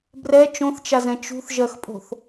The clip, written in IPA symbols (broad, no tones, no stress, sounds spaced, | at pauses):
b r ɛ t͡ʃ õ θ t͡ʃ a z ɛ̃ t͡ʃ ṳ θ ʒ ɜ x pʼ o̤ θ